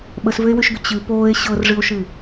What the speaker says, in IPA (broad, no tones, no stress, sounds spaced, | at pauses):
ɓ ə s v ʏ e̯ w y ʃ ɡ ʏ t͡ɕ ɨ p oː e̯ ɕ ɤ r ʐ ɨ o̯ ʃ ɨ